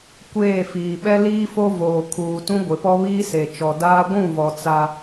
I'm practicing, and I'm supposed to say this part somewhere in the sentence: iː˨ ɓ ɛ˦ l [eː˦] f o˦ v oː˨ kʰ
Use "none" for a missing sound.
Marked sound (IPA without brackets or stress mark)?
iː˦